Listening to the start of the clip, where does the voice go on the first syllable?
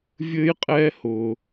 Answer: high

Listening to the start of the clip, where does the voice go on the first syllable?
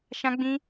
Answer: high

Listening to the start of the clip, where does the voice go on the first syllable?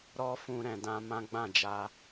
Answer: high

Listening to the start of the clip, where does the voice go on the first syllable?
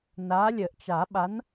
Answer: rising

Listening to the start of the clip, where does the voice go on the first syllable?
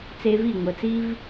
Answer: high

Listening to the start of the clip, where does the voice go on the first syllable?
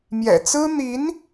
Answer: low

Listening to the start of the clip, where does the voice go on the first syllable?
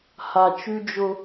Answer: low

